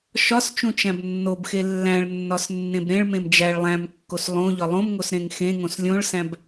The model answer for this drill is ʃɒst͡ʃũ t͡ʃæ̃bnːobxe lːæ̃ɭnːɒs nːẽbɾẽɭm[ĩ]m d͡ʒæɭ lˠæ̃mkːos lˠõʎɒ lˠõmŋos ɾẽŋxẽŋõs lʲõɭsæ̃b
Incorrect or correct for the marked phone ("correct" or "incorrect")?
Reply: incorrect